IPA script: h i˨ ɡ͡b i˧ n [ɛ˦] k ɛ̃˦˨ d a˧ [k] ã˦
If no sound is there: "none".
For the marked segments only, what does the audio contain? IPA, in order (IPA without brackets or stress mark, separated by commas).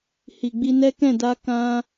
ɛ˦, k